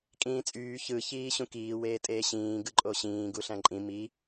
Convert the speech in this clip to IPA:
kʼĩːt͡sʼyː çɯ çiːɕũkiː weːtʼeːɕĩː ɡɯǃʼoɕĩː ɡuɬæ̃ǃʼĩ mi

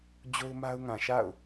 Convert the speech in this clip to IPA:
d͡ʑo˦ʊ̯ma˦ʊ̯ ŋã˨ʃa̰˦˨ʊ̯

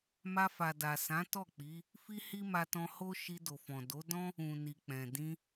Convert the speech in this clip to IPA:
ma˧fa˨ da˨sã˨˦tɔ˦˨ k͡pi˨˦ | fi˦hi˦ma˧tɔ̃˧ ho˦ ʃi˧ do˨fɔ̃˨ do˨˦dɔ̃˦ | ũ˨ni˨ k͡pɛ̃˨dĩ˧

